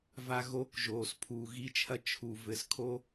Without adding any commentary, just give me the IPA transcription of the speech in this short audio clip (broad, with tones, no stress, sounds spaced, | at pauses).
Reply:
v a˨ ɣ o˨˦ k ʒ oː˨ s pʰ uː˨ ɣ i˧ t͡ʃʰ ɐ˧ t͡ʃʰ u˨ v ɘ˨ s kʰ o˧